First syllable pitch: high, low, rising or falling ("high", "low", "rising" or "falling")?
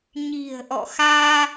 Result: low